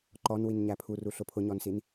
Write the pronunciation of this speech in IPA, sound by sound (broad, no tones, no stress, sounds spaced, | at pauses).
ǃ ɔ n w i n ɲ æ pʰ u r u ɬ ʊ pʰ ʊ ɲ ɔ n s i n